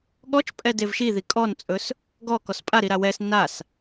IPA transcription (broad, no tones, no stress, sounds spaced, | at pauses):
ɠ ɔ t͡ʃ pʼ ɛ d e v ʃ i ð i kʼ ɔ n t͡sʼ ɵ s | ɡ ɔ k ɔ s pʼ a ɾ i ɾ a w ɛ s n a s